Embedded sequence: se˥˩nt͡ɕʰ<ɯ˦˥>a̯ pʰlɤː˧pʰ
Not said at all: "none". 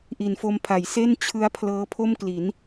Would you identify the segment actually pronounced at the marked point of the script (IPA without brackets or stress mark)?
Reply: ɯ˦˥